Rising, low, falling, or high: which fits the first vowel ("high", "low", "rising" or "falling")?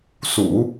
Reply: low